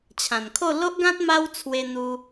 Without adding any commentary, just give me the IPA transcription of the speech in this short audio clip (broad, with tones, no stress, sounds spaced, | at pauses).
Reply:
t͡ɕʰ ã˨˩ n kʰ o˥˧ l o˦ ʔ ɡ ã˦ t̚ m a˦ w t͡sʰ w e˧ n̪ u˧